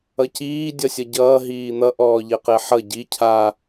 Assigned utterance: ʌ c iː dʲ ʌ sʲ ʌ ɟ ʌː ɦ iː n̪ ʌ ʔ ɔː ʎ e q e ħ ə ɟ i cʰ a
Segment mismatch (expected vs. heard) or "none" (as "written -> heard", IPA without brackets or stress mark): ə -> ʌ